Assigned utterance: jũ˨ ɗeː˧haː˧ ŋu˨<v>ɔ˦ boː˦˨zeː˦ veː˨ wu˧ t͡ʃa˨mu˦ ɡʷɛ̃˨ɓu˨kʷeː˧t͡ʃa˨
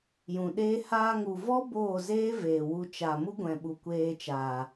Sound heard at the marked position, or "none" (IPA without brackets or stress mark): v